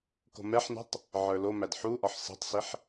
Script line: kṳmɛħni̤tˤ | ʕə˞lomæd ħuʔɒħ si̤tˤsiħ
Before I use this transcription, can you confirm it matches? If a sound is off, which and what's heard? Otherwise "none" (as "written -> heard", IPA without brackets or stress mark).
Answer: ṳ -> o̤